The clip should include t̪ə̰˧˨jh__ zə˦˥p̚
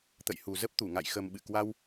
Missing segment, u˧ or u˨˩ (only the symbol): u˨˩